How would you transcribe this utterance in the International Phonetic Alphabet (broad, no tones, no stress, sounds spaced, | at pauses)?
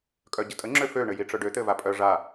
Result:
kʼ œ ɟ ə tʼ ə ŋ͡ǁ ø f ø ɳ ɘ j i ʈ͡ʂ œ ɖ ø t̪ ɘ v a pʼ œ ʐ a